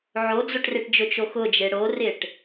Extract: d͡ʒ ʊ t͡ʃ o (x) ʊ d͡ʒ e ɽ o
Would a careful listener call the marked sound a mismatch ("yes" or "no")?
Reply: no